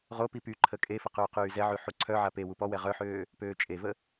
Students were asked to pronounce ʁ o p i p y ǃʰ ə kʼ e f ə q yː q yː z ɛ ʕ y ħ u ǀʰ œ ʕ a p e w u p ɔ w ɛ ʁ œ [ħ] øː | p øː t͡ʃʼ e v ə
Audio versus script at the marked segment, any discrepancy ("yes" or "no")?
no